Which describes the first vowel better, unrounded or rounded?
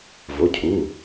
rounded